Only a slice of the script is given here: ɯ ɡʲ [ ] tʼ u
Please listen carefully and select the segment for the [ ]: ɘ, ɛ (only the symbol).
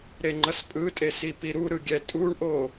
ɛ